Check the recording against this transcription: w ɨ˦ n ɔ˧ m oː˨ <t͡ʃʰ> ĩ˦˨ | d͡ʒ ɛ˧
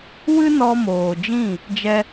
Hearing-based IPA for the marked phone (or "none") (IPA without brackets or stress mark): d͡ʒ